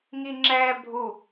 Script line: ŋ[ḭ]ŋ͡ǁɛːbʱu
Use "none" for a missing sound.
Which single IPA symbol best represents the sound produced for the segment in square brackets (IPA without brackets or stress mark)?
i